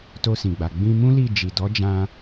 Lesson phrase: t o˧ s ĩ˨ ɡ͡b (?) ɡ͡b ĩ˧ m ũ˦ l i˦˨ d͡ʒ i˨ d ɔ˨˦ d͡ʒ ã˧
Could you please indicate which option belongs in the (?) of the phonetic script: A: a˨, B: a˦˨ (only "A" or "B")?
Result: A